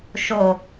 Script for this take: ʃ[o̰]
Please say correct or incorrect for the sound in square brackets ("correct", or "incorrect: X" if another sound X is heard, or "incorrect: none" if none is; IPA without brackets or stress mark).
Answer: incorrect: o